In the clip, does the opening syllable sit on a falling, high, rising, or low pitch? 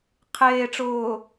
low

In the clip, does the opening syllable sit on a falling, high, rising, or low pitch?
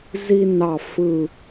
high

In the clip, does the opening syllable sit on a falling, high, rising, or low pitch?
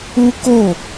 high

